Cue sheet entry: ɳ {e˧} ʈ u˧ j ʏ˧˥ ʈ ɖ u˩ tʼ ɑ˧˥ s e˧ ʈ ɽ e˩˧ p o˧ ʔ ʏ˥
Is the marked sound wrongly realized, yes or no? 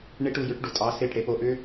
yes